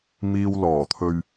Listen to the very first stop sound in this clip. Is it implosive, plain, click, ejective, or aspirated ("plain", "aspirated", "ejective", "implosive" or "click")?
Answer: aspirated